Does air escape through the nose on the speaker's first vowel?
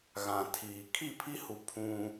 yes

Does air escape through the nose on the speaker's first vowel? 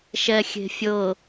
no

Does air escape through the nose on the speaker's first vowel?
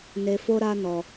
no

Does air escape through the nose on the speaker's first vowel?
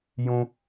yes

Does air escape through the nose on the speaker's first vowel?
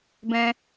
yes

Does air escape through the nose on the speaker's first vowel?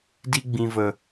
no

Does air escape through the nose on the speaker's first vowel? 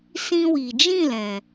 yes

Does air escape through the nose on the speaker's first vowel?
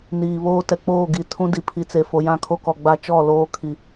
no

